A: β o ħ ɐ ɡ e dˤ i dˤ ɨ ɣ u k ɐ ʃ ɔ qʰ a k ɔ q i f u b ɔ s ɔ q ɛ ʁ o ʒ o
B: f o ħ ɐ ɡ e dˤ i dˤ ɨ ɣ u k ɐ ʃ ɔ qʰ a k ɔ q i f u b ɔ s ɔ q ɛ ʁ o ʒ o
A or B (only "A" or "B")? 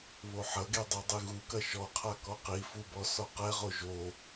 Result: A